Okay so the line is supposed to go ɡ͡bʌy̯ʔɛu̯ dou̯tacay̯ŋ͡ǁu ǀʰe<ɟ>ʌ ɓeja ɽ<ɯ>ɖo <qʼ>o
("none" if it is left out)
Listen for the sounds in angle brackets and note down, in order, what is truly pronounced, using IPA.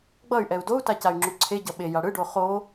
ɟ, ɯ, χ

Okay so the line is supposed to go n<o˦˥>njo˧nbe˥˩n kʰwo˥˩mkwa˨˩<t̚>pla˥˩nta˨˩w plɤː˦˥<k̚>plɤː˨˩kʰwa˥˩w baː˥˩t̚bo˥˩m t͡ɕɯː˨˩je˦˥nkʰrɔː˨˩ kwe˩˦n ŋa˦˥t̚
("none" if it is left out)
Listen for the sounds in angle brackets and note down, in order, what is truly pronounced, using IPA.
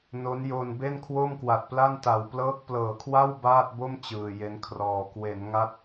o˦˥, t̚, k̚

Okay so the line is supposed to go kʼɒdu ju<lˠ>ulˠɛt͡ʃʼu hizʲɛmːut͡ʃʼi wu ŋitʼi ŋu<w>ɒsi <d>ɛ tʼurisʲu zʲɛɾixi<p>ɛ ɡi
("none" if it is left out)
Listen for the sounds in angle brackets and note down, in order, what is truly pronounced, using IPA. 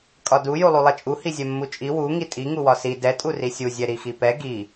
lˠ, w, d, p

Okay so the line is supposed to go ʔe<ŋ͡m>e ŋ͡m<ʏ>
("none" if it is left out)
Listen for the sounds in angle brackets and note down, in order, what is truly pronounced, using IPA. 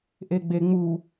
ɡ͡b, u

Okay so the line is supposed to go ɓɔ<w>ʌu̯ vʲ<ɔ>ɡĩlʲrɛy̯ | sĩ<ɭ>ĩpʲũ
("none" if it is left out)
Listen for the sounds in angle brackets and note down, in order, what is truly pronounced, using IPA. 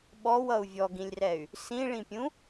w, ɔ, ɭ

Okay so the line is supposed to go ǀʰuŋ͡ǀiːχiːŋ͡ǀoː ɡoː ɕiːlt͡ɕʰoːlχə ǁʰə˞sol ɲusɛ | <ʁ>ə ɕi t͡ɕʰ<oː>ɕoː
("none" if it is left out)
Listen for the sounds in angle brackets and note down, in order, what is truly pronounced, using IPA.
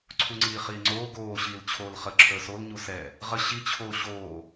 ʁ, oː

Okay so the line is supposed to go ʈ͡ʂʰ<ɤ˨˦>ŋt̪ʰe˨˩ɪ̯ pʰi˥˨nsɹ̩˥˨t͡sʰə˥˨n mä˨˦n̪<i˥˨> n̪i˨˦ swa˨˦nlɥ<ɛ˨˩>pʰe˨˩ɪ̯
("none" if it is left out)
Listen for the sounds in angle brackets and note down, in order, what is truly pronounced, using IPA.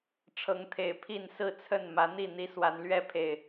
ɤ˨˦, i˥˨, ɛ˦

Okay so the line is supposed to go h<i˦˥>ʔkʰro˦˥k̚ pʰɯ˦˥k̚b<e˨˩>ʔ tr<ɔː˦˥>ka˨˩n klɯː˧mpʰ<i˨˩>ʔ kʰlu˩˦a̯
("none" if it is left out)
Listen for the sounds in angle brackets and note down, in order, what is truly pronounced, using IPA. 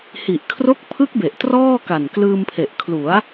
i˨˩, e˨˩, ɔː˥˩, e˨˩

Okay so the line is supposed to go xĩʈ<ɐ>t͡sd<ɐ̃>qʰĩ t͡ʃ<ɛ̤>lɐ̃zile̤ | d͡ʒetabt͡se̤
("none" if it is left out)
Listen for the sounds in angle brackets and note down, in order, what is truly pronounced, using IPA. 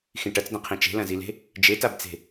ɐ, ɐ̃, e̤

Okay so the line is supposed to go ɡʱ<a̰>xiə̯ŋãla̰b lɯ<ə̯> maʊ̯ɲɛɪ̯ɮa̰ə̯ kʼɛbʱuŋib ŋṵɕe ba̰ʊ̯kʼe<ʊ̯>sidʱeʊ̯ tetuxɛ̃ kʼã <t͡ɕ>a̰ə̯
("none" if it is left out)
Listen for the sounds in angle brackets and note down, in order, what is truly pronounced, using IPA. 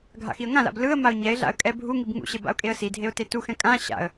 a̰, ə̯, ə̯, ɕ

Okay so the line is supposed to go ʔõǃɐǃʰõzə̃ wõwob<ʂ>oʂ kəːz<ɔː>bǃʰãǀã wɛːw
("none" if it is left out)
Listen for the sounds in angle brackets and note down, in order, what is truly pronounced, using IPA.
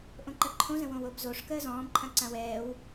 z, ɔ̃ː

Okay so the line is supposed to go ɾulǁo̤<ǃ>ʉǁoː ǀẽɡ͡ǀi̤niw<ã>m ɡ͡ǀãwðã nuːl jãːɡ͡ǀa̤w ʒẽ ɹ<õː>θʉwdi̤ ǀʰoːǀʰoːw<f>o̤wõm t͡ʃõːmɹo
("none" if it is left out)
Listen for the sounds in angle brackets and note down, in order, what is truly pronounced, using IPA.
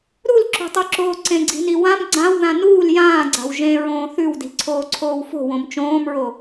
tˤ, ã, õː, f

